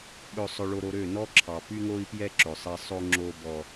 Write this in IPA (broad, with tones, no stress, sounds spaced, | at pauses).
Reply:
ɓ ɵ˨ sˤ ɵ˨ ɭ o˨ ɾ o˨ ɾ ø˦˨ n ɔ˦ ǁʰ ɑ˨ p y˦ ŋ o˦ i̯ p j ɛ˦ ǁ ɵ˨ sˤ ɛ˦ sˤ o˦ ŋ͡ǁ o˦ b ɔ˦